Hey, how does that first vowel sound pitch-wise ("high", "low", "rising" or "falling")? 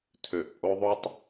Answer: low